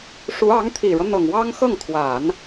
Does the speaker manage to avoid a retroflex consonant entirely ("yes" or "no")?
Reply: no